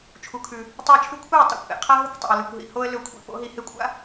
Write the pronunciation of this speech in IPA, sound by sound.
t͡ʃʰ u˨ kʰ ʉ˨ | tˤ e˧ ə̯ t͡ʃʰ ʉ˧ kʷʰ e˦˨ ə̯ tˤ a̰˦ kʷ ʔ ḛ˨ qʰ a˦ ɦ ɨ˦ kʷ tˤ a̰˨ ə̯ l ɨ˨ kʷ ɦ ḭ˨ h o˦ ə̯ l ɵ˧ kʷʰ ḭ˨ p o̰˨˦ ɦ i˧ h e˦ kʷʼ a̰˦

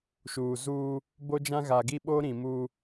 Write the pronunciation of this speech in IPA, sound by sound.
ʃ uː˨ z uː˦ | b o˦ d͡ʒ ã˦ ɣ a˨ ɡ i˦ ɓ o˦ ɾ ĩ˨ m uː˦

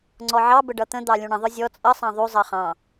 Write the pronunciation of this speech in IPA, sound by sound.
ŋ͡ǀ ɔ ʕ ɑ b ə ɖ ʌ t̪ ə̃ d̪ ɑ lʲ ũ ɳ ə̃ ðˤ ʊ zʲ ɔ t͡sʼ ʌ sˤ ɑ̃ ðˤ u zˤ ʌ χ ɑ̃

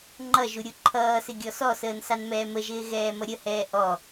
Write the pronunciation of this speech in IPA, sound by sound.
ŋ͡ǃ ʌ ʒ u ɾʲ u ǃʰ ʌː s ɪ ɡʲ ɔ s ɔ s əː n s ɑ n m ɛː m ə ʒ ɪː ɣ ɛː m ʌ ɾʲ ə h ɛː ʔ ɔ

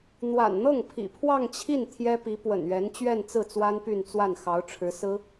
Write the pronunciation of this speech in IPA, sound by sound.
n̪ w a̰˨˩ n n̪ ɤ˥˩ ŋ pʰ ḭ˨˩ pʰ w ɑ˥˧ ŋ t͡ɕʰ i˥˩ n t̪ʰ j ɛ˥ p i˧˥ p w ə̰˨˩ n ɥ ɛ˧˥ n t͡ɕ ɥ ɛ˥˧ n t͡s ɹ̩˥˩ t͡s w a˥ n p y˥˧ n t͡s w a˥˩ n x ɑ˧˥ ʊ̯ ʈ͡ʂʰ ɻ̩˧˥ s ɹ̩˥

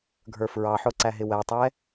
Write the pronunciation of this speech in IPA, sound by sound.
ɡʱ ə˞ f ɹ ɑ ħ ʊ ǀ æ ɦ ɪ w æ tˤ ɛ

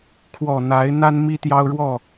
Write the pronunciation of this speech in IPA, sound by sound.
kʰ w ɔ˨˩ n̪ a˨˦ ɪ̯ n̪ a˦ n m i˦ t̪ j ɑ˦ ʊ̯ ɻ w ɔ˥˨

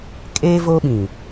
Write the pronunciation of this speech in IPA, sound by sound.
kʼ eː˦ v oː˦ ɓ ĩ˨

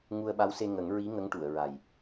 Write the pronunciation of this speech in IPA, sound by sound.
ŋ u˧ ə̯ ɓ a˧˥ w s e˧ ŋ ə˨˩˦ ŋ ɹ i˧˥ ŋ ə˧˥ ŋ ʈ u˨˩˨ ə̯ ɹ a˨˩ j

